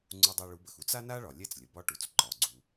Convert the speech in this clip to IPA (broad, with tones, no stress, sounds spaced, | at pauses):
ŋ͡ǀ u˧ dˤ ɛ˧ ɭ u˩˥ b ə˩ x u˥ t͡s a˥ n a˥ ɭ ɒ˩ lʲ ɛ˥˩ t͡s lʲ ə˩ b ɒ˧ ʈ u˩ t͡s ǃ ɒ˩ ɡ͡ǀ u˩